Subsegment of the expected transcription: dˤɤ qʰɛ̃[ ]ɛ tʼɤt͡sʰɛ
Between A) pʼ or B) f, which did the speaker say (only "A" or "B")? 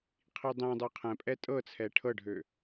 A